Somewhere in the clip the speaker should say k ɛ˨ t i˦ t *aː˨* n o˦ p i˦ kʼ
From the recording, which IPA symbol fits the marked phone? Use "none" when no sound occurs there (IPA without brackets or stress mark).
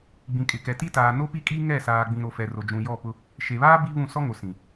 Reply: aː˨